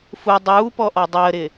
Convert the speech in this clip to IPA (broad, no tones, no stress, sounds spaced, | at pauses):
f u dˤ uː p ɔ ʔ ɔ dˤ əː ɾ ɪ